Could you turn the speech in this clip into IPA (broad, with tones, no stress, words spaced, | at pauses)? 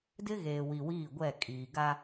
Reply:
dɪ˦ ɣeː˨wi˨wiː˦˨ɡʷɛ˦˨ kʼiː˨ ɡa˦